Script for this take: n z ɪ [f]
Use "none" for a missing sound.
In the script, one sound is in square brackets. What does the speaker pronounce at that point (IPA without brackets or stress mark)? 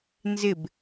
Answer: b